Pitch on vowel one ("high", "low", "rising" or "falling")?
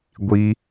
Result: high